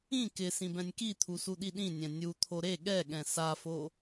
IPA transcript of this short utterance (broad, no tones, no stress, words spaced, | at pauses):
ĩ kɪ sĩbɛ̃nʲkit̪ʰu suɗiɗĩnʲɛ̃ nʲut̪ʰo ɾe ɠɛɠɛ̃ safo